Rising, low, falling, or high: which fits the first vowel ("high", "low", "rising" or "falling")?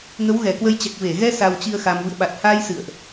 rising